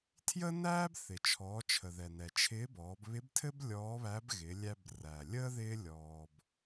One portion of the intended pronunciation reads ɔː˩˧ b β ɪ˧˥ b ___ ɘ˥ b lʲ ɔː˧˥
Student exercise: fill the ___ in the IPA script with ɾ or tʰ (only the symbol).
tʰ